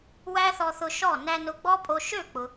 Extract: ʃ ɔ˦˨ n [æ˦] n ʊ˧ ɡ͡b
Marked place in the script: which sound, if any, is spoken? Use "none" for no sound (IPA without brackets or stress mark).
æ˧